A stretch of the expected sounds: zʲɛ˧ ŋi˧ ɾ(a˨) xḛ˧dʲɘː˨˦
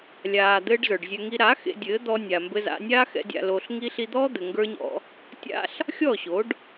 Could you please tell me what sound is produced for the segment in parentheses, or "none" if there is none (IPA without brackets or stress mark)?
a˨˦